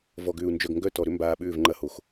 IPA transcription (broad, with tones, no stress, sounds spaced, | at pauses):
v ɔ˨ ɡ ʏː˨ u̯ n d͡ʒ œ˨ ɡ ŋ ɡ œ˦˨ t ɔ˨ ɾ ʏ˦ m b aː˨ ɓ ʏː˦˨ v ŋ͡ǃ ɐ˦ h o˨ x